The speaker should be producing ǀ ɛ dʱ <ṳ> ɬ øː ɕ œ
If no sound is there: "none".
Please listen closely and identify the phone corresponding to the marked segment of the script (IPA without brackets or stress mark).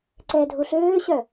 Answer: u